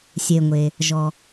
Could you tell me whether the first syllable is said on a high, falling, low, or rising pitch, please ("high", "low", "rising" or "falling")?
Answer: low